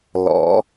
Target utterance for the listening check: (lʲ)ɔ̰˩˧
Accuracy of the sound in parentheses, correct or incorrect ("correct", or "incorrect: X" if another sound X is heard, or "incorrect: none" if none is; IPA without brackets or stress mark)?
incorrect: l